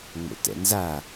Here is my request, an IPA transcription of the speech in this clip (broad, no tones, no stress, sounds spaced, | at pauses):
ŋ͡m o̰ t ɛ̰ n z a